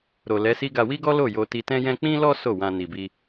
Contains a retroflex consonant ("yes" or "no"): no